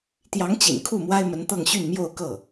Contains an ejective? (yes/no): no